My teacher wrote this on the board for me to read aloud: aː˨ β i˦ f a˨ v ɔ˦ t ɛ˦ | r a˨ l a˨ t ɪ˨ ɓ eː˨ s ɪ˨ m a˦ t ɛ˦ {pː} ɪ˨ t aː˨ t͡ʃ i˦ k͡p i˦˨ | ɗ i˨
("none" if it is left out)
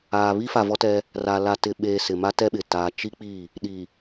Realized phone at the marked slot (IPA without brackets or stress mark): ɓ